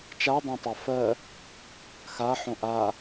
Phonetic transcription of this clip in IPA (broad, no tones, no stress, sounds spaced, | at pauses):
t͡ʃ a dˤ ã tˤ a f ɜ | x a ħ õ ʔ a